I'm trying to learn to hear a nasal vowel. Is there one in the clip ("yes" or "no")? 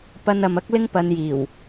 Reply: no